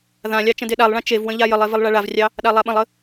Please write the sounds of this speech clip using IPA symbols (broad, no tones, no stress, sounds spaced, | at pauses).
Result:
ð ã lʲ ɑ t͡ʃ ə̃ d e ɗ a lˠ ɭ ã t͡ʃ e v w ə̃ ʎ a j ə lˠ e v ə lˠ ɭ a ɭ a v rʲ ɑ | ɗ a lˠ a ɓ ə̃ lˠ ə